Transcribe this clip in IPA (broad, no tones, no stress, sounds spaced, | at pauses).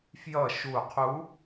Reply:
f j ʌ ʃ u qʰ u